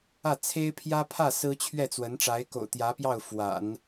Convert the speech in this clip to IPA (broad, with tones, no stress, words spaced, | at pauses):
ä˥˩ t͡sʰe˥ɪ̯pʰjä˥pʰä˥˩ sɹ̩˥t͡ɕʰɥɛ˥˩t͡swə˧˥n ʈ͡ʂa˧˥ɪ̯ko̰˨˩ʊ̯t̪jä˧˥pjɑ˥˩ʊ̯ fwa̰˨˩˦n